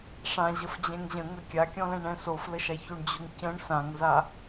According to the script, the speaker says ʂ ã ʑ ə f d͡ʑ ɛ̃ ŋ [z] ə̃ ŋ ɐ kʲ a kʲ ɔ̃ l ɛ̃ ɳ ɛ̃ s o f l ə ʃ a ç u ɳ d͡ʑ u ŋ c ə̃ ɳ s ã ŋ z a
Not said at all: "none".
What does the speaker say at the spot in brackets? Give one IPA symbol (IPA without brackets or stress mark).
ʑ